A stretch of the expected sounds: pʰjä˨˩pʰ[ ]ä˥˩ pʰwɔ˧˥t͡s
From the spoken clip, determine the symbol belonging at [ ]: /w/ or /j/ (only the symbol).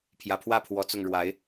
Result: w